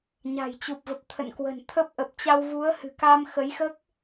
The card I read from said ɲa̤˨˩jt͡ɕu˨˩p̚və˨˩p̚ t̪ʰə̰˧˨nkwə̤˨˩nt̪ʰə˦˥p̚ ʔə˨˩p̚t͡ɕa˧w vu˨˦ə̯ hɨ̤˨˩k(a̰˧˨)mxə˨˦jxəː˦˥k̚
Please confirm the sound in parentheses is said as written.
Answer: no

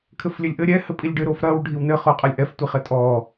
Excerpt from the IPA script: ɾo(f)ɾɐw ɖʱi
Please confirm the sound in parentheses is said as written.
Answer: yes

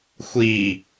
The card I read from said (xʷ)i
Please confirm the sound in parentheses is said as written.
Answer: yes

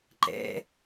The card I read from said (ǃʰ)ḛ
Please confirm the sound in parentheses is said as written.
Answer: no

